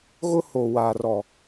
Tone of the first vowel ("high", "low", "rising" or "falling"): high